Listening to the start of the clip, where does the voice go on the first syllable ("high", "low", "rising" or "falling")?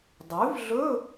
rising